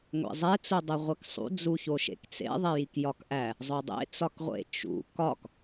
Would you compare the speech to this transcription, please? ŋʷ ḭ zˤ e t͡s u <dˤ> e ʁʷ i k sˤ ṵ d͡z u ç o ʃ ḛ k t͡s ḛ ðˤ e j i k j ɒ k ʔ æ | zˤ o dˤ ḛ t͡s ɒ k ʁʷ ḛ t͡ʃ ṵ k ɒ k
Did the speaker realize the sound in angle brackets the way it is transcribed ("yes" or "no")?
yes